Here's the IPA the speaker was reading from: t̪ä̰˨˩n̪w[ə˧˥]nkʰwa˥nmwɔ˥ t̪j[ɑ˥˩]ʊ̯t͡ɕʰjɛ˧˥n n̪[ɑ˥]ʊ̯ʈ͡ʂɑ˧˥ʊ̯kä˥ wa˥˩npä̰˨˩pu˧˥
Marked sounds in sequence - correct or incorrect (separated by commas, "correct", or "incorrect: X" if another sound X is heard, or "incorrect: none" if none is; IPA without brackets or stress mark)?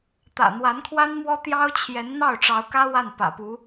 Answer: incorrect: a˧˥, incorrect: ɑ˥, incorrect: ɑ˥˩